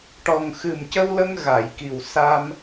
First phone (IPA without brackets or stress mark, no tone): ʈ